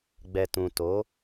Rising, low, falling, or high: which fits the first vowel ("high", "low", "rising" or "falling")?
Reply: low